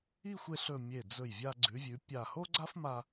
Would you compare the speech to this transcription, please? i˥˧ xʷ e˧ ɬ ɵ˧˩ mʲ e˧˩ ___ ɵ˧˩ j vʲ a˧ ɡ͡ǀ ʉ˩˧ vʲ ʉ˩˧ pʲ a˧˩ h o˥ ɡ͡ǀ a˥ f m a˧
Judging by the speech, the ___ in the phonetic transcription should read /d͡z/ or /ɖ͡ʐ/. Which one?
d͡z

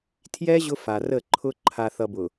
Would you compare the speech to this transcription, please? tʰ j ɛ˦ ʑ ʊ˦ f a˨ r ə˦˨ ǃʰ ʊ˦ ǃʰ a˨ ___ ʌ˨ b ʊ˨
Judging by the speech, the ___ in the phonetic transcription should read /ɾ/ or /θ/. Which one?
θ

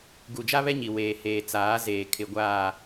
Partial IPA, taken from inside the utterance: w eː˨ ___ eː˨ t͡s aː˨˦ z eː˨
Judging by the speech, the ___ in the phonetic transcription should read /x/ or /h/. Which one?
h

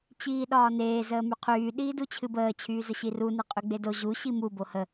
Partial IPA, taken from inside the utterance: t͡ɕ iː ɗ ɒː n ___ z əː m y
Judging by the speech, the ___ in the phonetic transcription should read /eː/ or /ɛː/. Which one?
eː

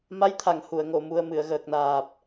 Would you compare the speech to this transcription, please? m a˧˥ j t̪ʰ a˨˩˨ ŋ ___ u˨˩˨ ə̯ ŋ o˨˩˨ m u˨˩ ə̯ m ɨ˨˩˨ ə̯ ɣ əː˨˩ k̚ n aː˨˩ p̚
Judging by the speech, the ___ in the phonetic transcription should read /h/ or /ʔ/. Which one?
h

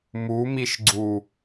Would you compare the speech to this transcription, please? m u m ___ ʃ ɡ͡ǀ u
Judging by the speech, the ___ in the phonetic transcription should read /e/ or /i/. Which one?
i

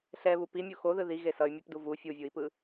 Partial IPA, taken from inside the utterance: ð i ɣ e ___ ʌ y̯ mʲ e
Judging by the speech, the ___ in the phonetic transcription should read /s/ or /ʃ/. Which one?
s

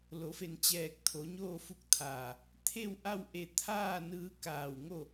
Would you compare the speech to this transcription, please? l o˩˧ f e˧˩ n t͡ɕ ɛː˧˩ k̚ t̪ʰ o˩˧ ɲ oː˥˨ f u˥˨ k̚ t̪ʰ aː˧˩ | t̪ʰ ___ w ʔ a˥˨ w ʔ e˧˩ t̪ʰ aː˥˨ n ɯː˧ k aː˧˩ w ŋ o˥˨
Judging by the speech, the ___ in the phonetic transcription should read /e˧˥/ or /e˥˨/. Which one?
e˥˨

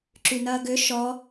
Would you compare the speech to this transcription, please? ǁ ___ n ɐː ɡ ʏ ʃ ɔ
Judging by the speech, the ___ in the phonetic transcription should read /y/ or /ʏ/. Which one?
y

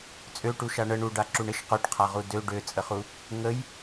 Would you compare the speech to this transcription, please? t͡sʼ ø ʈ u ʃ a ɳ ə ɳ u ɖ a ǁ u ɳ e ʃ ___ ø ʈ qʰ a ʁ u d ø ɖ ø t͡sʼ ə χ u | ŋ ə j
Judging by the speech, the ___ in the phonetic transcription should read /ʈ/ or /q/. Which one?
q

